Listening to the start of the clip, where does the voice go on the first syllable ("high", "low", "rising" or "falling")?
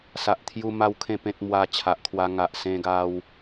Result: low